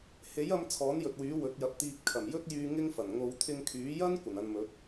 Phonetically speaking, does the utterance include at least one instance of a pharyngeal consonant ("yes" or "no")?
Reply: no